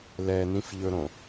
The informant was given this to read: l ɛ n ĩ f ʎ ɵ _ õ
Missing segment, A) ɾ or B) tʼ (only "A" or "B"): A